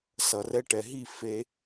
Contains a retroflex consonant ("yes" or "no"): yes